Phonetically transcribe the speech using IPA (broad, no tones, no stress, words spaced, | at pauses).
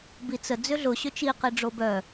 bit͡sə d͡zʏɮʊ ɕʏt͡ʃi qiɖ͡ʐobœ